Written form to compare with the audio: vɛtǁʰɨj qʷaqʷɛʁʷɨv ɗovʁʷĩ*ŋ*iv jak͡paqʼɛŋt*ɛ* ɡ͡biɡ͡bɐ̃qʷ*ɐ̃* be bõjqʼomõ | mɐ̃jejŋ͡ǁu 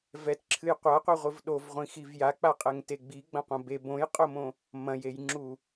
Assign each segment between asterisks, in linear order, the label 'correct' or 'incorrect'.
incorrect: x, incorrect: e, correct

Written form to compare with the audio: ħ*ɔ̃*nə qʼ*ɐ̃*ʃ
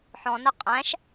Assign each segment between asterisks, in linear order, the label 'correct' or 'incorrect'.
correct, incorrect: æ̃

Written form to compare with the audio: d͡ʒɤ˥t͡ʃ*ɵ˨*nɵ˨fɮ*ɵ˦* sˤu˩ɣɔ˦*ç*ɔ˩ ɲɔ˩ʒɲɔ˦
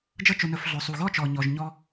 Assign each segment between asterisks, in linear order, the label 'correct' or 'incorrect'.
correct, incorrect: ɵ˩, incorrect: t͡ʃ

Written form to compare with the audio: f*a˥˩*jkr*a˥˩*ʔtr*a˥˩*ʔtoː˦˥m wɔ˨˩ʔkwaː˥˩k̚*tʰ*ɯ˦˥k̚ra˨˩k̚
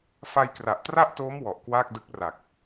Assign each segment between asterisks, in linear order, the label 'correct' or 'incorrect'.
incorrect: a˧, incorrect: a˨˩, correct, incorrect: d

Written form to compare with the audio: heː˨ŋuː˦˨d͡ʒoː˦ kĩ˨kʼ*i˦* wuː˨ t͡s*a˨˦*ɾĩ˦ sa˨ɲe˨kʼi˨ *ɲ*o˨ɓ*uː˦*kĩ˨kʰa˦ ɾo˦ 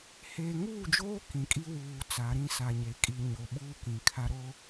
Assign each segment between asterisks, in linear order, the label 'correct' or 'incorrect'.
correct, correct, correct, correct

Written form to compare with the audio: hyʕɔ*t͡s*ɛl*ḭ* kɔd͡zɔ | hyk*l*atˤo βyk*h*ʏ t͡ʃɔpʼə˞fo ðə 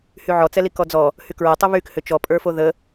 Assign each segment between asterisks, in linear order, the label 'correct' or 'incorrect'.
correct, incorrect: i, incorrect: ɹ, correct

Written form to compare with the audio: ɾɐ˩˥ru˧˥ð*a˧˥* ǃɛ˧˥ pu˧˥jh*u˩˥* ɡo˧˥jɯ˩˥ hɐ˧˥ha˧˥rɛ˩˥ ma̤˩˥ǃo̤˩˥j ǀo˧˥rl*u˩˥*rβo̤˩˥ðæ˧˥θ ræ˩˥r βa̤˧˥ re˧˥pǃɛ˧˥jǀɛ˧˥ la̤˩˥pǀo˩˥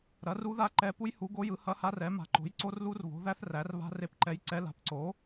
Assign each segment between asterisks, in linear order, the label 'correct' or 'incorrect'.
correct, correct, incorrect: u˧˥

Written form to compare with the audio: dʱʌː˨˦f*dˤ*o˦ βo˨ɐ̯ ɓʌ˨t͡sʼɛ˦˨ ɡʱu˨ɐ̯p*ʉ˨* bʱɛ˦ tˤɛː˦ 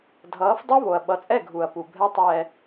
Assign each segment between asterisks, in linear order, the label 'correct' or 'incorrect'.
correct, incorrect: u˨

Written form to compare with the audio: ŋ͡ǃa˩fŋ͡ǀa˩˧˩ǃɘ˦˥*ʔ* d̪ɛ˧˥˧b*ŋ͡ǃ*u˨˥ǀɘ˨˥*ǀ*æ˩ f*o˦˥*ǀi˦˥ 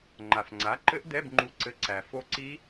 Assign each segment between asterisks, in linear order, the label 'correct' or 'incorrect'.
correct, correct, correct, correct

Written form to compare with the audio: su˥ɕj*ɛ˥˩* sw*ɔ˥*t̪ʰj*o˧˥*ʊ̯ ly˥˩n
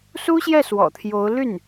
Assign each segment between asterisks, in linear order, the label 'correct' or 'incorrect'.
correct, incorrect: ɔ̰˨˩, correct

